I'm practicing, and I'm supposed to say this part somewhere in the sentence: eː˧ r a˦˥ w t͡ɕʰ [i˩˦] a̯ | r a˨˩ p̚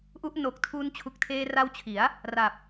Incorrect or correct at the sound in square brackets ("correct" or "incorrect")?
correct